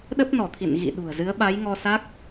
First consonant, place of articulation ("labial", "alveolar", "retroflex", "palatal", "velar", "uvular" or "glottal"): alveolar